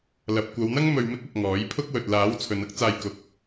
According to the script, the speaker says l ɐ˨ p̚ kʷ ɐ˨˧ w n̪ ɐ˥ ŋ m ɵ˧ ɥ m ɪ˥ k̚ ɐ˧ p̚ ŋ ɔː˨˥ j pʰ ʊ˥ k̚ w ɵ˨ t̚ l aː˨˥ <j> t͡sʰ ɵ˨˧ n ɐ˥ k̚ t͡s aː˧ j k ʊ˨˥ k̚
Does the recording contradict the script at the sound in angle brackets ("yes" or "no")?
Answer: yes